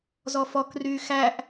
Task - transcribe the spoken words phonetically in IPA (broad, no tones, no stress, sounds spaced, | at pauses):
z ɔ f ɔ k r yː x æ ʔ